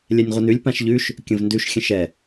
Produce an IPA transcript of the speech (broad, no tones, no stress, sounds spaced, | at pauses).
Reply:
lʲ ɛ nʲ ʁʷ ə n ʉ lʲ p ã ʃ ʎ ʉ ʃ | kʲ ə̃ v n d ʉ ʃ xʲ ə̃ ʃ ɛ